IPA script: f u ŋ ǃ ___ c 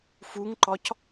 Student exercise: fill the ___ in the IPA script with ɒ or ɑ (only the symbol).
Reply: ɒ